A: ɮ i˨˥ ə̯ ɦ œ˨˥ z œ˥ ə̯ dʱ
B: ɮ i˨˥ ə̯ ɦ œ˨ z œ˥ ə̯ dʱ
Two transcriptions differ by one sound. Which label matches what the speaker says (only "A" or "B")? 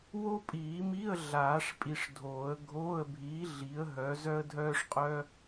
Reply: A